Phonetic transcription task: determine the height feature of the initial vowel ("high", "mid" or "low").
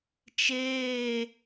mid